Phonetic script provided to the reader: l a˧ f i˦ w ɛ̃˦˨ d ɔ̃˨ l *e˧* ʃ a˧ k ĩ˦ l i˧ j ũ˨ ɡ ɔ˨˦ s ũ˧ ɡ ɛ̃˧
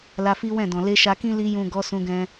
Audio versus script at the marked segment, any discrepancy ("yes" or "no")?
no